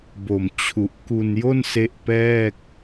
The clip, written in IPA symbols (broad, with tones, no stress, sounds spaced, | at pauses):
b o˨˩ m t͡ɕʰ u˨˩ ʔ k u˧ n j o˥˩ n s e˦˥ ʔ p ɛː˥˩ k̚